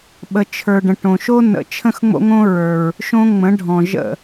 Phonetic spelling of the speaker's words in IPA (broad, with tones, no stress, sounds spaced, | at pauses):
ɓ ə˨ t͡ʃʰ ə˞˨ ɖ ə̃˨ ʈ õ˨ ʃ o˦ n ə̰˨ t͡ʃʰ ə̃˦ x ŋ͡m o̰˦ ŋ õ˦ ɹ ə˞˨ ɹ | ʃ õ˦ ŋ͡m ə̃˨˦ ɖʱ ɔ̃˨ ʒ ə̰˦˨